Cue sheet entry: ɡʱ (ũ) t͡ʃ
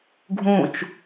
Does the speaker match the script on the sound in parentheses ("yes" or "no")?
yes